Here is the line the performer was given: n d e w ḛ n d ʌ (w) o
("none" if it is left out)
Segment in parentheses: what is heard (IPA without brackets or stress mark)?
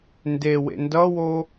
w